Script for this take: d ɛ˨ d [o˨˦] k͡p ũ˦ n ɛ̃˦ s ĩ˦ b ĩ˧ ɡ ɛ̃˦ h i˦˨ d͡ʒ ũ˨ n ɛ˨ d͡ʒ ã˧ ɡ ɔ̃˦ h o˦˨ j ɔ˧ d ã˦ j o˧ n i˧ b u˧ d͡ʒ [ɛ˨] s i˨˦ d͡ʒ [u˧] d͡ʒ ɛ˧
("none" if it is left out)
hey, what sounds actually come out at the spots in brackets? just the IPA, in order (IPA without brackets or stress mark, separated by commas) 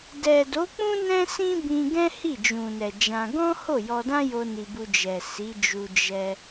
o˨˦, ɛ˨, u˧